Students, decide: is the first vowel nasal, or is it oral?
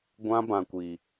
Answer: nasal